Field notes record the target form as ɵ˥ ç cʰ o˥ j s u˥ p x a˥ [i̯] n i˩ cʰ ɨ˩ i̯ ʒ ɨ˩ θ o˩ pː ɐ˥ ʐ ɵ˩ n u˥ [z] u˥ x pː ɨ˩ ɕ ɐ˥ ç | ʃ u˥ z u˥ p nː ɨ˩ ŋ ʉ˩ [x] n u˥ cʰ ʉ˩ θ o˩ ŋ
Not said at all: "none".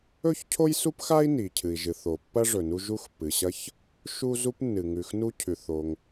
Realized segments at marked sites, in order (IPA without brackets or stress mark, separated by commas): i̯, ʒ, x